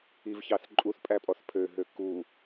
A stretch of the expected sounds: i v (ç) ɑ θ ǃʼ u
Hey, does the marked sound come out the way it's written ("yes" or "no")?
yes